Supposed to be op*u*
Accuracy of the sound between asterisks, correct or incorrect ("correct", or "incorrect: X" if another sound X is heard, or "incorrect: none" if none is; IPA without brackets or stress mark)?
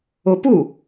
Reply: correct